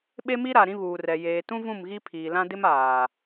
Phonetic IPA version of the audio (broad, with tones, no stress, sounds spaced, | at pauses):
ɓ e˦ m i˦ ɾ a˨ ɾ ĩ˦ β uː˨ r ɛ˨ j eː˨ t ũ˦ v ũ˦˨ m ɣ i˦ pʰ iː˨ l ã˦ d ɪ˦ m aː˨